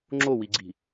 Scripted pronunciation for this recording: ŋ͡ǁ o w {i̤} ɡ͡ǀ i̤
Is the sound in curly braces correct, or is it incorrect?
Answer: incorrect